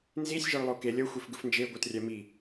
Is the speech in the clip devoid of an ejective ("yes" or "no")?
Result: yes